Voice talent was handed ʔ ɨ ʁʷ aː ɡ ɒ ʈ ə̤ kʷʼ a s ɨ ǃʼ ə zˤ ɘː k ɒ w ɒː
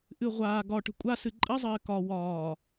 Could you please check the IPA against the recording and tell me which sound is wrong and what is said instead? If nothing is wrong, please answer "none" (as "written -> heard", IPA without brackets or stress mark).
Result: none